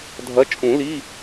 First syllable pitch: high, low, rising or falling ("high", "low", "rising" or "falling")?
rising